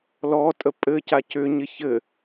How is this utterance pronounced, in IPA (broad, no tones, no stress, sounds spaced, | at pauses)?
l ɔ tʼ ə pʼ ɘ c a c ʏ ɲ ɪ ç ɘ